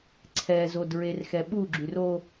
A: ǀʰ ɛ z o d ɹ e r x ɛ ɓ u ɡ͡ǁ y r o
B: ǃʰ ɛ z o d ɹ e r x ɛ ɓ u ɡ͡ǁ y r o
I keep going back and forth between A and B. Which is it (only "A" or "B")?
A